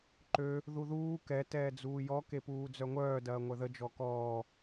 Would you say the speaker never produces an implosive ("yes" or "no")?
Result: yes